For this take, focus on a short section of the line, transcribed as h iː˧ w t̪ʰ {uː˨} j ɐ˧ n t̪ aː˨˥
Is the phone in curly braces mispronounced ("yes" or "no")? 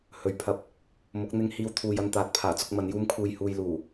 no